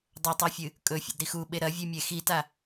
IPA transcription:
dˤ ɵ tˤ i fʲ ɨ | kʼ ɵ fʲ ḛ d ɾ i x u ɓ e ɾ ɐ vʲ ʉ mʲ e x i t a

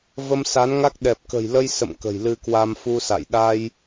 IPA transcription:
v ə˧ m s a˨˦ n ŋ a˦˥ k̚ ɗ ɛ˨˩ p̚ k ə̤˨˩ j l ə˧ j s ə̰˧˨ m k ə̤˨˩ j l ɨ˧ k w a˧ m f u˧ s a̰˧˨ j ɗ a˧ j

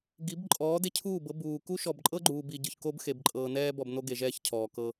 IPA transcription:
ɡ i˨˦ b ǃʼ ɔː˨˦ d e˦ cʰ uː˦˨ b ɤ˦ b uː˨ k u˦ ʃ ɔ˨ b ǃʼ ɤ˦ ɡ͡ǃ uː˨ b i˨ ɟ ɯ˨ ç k o˦ b x e˨ b ǃʼ ɤː˨ n ɛː˦ b ɔ˨ b n o˦ ɡ e˨ ʒ ɛː˦ ç cʰ ɔː˨ k ɤ˦

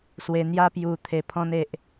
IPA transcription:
s w e˧ n̪ j a˦ p j u˧ t̪ʰ e˧ pʰ ɔ̃˦ n e˨ ʔ

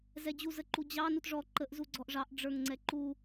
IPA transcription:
z ɛ d͡ʑ u z ə ǃ u d͡ʑ ɑ n u t ʐ ɔ ǃ ə ʔ z u ɡ͡ǀ ɔ ʔ ʐ ɑ ʔ ɖ͡ʐ ə˞ ŋ ŋ͡ǀ ɛ ǃ u

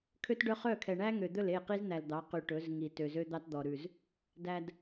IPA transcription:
kʰ ø˦ t ɖ œ˦ χ œ˦˨ kʰ ɛ˨ ɳ æ˦ ŋ ø˨ d̪ ɵ˦˨ l e˦˨ q i˦ z n̪ æ˨ l d̪ ɑ˨˦ q y˨ ʈ ɵ˨˦ z ŋ i˨ t ø˨ z ø˦ d̪ ɑ˦ t d̪ ɔ˨ ɾ ʉ˨ z | d æ˨ d

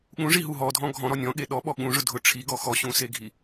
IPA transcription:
ɠ ũ ʐ i ɦ u ɦ ɔ dʱ ɔ̃ ɡʱ ɔ̃ ɾ ɔ nʲ ɔ̃ ɠ e ɗ ɔ ɓ ɔ ɠ ũ ʐ ʊ dʱ ʊ ʈ͡ʂʰ i ɡ ɔ x ɔ ɕ ũ s e ɡʱ i

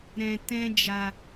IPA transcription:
ɾ ɛ̃˧ t ɛ̃˦ d͡ʒ a˧

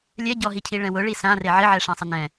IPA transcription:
lʲ ɛ ɟ ɔ ɦ i cʰ i ɭ ɛ̃ w ʊ ɭ i s ã r e ʕ ɪ ʕ ɛ ʂ ã sˤ ɪ n ɛ̃

